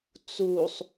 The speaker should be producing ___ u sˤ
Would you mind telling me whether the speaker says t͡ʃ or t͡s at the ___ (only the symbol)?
t͡s